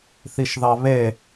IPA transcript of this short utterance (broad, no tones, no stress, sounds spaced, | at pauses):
θ i ʃ ð ɑ β e